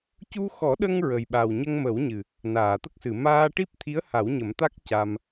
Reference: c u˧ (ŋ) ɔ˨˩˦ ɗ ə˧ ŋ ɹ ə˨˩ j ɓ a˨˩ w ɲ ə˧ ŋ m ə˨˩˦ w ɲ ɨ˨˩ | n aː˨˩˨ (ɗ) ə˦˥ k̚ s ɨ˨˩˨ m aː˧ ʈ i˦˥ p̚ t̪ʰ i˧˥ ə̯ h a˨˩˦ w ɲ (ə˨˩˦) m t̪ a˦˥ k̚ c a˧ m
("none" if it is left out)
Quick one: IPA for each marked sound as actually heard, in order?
x, t̪, ə˨˩˦

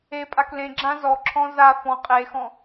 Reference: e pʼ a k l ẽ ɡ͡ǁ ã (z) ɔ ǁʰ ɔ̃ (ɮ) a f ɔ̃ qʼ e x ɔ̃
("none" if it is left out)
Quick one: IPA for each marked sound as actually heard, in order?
z, z

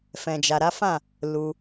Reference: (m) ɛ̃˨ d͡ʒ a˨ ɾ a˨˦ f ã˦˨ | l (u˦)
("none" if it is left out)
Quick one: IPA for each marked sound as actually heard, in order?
f, u˧

